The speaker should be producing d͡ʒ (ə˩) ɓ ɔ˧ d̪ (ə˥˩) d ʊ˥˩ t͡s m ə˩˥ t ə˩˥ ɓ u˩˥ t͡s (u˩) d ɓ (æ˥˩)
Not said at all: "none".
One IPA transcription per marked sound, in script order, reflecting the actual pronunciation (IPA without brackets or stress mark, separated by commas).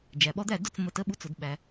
æ˩, æ˥˩, ʊ˩, æ˩